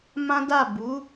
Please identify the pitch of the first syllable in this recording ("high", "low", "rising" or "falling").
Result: high